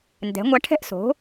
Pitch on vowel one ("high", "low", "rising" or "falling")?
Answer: rising